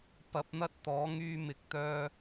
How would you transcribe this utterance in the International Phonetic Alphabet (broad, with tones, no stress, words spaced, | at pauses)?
pɐ˨˥p̚n̪ɐ˥t̚t̪ɔː˨˥ ŋyː˥mɪ˧k̚t̪œː˥